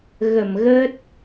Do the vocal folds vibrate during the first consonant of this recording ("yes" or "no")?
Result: yes